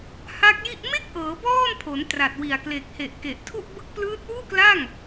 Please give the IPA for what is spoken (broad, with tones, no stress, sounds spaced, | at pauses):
h a˦˥ k̚ j i˥˩ ʔ m e˥˩ k̚ ʔ ɤː˩˦ b ɔː˥˩ n pʰ o˩˦ n t r a˨˩ t̚ w i˨˩ a̯ k l e˨˩ k̚ h e˨˩ ʔ k e˨˩ ʔ tʰ u˥˩ ʔ b ɯ˦˥ k̚ p l ɯː˦˥ t̚ w uː˥˩ k l a˥˩ ŋ